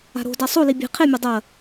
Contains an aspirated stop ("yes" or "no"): yes